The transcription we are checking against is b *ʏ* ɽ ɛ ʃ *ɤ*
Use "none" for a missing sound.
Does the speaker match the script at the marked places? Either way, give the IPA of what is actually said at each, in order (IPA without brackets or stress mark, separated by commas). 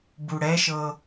u, ɤ